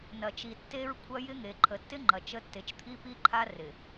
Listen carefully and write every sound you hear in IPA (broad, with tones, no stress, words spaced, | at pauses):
nɐ˨t͡ʃi˨ tːe˦ɹ kʷʰɐ˦jɪ˦ŋe˨ ǃʰə˨tːɪ˦ŋ͡ǃɐ˨ t͡ʃə˦ tːe˨t͡ʃt̪ʰi˦pi˦ǃʰa˦ rɪ˨